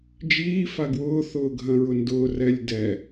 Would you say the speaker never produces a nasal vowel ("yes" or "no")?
no